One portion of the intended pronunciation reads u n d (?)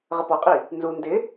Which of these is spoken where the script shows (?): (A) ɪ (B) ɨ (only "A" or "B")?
A